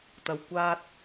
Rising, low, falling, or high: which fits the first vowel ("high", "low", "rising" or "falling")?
low